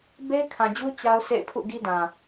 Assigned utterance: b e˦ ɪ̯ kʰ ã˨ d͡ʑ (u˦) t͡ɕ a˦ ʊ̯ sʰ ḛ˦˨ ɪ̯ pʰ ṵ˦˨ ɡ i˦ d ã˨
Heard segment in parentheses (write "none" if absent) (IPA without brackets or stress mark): u˦